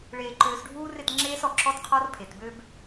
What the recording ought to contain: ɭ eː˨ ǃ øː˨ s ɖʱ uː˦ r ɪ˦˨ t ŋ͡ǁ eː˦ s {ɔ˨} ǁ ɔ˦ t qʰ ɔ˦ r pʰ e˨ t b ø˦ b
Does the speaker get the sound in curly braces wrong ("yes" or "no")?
no